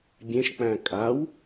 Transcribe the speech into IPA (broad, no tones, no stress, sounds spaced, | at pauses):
bʲ ẽ ʃ k͡p æ̃ kʼ a w